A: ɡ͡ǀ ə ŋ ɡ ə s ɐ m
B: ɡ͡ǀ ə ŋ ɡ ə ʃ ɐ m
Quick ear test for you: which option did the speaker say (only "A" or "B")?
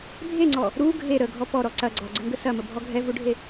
A